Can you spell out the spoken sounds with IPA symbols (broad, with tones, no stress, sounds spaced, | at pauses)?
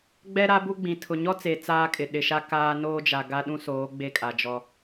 ɡ͡b ɛ˦ ɾ a˦ b u˦ ɡ͡b ĩ˨ tʰ ʊ˨ ɲ ɔ˦ t͡s e˨ t͡s aː˦ kʼ ɪ˨ ɗ ɪ˨ ʃ a˦ k aː˦ n oː˦ d͡ʒ a˨ ɡ a˦ ɗ ũ˦ s oː˨˦ ɡ͡b e˦ kʼ a˨ d͡ʒ ɔ˦